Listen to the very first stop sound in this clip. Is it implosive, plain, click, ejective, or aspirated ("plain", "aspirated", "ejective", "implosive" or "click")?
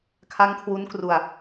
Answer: aspirated